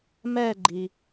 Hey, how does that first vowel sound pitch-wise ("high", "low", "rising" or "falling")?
falling